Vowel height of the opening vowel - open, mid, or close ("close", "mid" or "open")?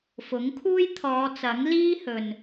close